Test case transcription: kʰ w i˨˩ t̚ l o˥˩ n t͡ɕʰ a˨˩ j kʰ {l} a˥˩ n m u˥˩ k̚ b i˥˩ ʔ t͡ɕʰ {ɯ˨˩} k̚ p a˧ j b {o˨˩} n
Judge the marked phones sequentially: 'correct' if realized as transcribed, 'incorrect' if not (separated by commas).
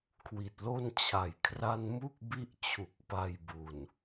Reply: incorrect, incorrect, incorrect